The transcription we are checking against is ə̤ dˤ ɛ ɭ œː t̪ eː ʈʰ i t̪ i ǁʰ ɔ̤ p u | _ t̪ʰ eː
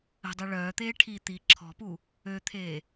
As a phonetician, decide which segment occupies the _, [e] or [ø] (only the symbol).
ø